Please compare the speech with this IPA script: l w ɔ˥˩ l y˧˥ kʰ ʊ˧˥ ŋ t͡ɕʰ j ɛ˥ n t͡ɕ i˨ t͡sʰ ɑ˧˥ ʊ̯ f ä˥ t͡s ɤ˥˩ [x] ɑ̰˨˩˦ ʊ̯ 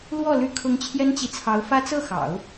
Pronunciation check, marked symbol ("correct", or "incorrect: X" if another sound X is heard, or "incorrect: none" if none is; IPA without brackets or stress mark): correct